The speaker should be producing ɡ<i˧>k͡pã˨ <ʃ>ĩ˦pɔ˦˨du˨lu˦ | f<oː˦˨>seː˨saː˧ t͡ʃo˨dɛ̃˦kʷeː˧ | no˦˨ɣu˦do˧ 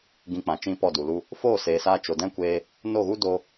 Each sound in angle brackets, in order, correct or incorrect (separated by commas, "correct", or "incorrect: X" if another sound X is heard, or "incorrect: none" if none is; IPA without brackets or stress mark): incorrect: ĩ˧, incorrect: t͡ʃ, correct